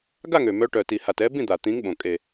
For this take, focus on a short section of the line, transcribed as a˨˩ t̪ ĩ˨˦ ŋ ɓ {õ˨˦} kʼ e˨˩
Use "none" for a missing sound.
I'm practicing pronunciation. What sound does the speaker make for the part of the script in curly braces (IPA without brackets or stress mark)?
õ˨˩